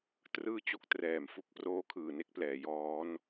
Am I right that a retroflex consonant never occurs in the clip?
yes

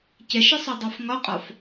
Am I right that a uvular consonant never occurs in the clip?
no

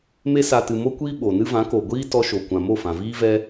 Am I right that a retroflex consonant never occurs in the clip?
yes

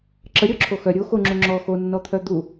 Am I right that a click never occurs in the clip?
no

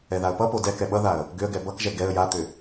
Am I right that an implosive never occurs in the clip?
no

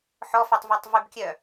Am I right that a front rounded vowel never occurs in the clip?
no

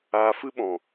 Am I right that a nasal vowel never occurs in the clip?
no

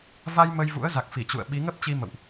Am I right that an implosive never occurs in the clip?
no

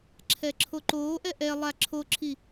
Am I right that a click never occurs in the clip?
no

